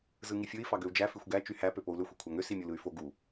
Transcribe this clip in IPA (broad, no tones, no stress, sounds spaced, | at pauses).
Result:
z ɯ ŋ i fʲ ɯ i̯ f ɑ ɡ ø u̯ d͡ʒ æ f i xʷ ɡ æ t͡ʃ y h æ p ø p o u̯ l ø xʷ y kʷʰ æ ŋ ø s i mʲ u l ɯ y̯ f o ɡ u